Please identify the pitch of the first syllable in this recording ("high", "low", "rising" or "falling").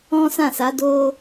high